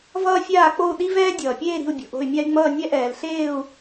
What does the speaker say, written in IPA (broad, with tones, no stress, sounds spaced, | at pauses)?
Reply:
v ʌː˥ fʲ aː˥˨ k͡p o˥˨ u̯ ɗ i˥ v ɛː˥ dʲ ʌː˩ pʲ eː˥˨ ɾ i̤˥˨ u̯ bʲ o̤˩ ʔ o̤˥˨ y̯ mʲ a˥ y̯ ŋ͡m ʌː˥˨ nʲ ɛ˥ ʔ ɛː˩ l ɬ eː˥˨ u̯